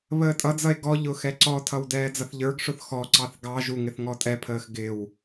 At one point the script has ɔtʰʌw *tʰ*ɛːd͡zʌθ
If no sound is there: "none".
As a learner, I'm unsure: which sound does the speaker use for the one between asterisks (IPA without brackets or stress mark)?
d